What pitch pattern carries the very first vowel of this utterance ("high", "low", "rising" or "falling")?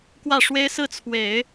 falling